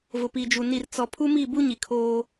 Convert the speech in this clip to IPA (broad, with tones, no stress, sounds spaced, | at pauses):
v ʊ˨ p i˨ d͡ʒ u˨ n i˨ r t͡s ɔ˨ pʰ u˦ m i˦˨ b u˦ ɲ i˨ kʰ oː˦